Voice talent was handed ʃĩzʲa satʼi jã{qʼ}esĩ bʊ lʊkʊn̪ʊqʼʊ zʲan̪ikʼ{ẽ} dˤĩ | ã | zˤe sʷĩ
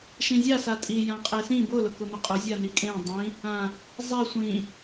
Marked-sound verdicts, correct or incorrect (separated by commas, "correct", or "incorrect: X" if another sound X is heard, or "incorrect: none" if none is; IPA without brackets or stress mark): correct, correct